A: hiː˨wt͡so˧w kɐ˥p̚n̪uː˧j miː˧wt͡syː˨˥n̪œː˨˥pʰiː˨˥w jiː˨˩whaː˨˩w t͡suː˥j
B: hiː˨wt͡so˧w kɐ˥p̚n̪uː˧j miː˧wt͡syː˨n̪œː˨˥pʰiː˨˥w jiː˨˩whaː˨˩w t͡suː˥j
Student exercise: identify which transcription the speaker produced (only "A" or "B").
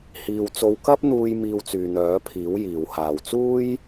B